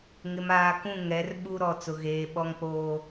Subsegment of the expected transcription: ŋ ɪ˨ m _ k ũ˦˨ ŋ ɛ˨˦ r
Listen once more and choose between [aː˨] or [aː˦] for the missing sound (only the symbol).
aː˨